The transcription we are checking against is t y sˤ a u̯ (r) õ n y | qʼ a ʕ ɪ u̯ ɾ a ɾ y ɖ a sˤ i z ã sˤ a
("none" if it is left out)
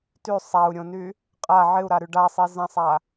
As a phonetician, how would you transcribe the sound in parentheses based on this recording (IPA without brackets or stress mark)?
ɾʲ